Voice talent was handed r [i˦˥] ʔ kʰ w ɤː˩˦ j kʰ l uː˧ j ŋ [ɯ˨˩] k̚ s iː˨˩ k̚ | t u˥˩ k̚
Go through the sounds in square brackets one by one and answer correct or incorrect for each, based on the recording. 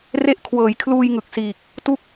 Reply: incorrect: e˦˥, correct

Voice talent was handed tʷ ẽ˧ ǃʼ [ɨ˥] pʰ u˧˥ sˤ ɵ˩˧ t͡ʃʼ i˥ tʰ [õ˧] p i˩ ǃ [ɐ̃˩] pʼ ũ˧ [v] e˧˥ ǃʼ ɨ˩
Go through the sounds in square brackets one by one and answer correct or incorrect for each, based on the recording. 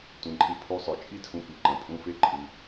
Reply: incorrect: ɨ˧, incorrect: ũ˧, correct, incorrect: f

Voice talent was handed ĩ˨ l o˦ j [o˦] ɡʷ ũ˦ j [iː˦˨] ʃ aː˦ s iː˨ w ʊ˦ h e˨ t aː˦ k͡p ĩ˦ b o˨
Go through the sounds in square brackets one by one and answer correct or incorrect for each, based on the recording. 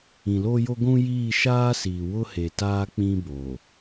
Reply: correct, correct

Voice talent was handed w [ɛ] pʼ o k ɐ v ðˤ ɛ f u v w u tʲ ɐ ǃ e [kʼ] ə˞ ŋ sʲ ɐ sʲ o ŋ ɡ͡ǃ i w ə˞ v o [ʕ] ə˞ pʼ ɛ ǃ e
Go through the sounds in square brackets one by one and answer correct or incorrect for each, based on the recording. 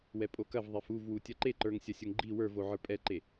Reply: correct, incorrect: ǃ, correct

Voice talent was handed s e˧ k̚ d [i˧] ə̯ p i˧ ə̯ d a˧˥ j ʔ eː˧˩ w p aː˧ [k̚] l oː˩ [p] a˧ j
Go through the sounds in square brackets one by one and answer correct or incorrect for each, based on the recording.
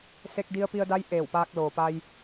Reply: correct, correct, correct

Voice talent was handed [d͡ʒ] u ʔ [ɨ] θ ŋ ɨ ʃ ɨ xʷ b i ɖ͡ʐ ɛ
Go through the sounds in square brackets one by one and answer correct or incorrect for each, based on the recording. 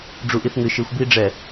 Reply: incorrect: ɖ͡ʐ, incorrect: i

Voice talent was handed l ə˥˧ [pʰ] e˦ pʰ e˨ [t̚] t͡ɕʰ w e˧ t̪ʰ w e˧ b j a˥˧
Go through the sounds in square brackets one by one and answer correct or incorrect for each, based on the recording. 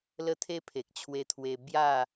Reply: incorrect: t̪ʰ, incorrect: k̚

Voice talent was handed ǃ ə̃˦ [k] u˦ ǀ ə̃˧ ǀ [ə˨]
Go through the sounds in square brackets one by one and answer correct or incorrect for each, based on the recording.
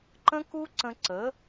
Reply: correct, incorrect: ə˨˦

